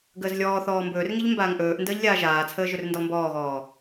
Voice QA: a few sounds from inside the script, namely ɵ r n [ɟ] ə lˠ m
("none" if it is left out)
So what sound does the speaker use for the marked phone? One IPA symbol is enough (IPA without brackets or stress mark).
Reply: d